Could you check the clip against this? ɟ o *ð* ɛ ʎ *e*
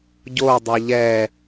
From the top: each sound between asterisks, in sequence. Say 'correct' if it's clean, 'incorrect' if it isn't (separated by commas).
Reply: incorrect, incorrect